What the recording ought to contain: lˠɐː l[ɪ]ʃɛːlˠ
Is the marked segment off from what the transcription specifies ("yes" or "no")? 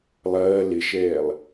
no